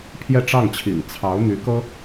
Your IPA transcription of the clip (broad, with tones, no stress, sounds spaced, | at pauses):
pʰ j ɛ˥˧ ʈ͡ʂ ɑ˥˩ ŋ t͡ɕʰ ḭ˨˩ ŋ t͡sʰ ɑ˧˥ ʊ̯ n̪ y˧˥ k ɤ˥